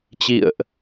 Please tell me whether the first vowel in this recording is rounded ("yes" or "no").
no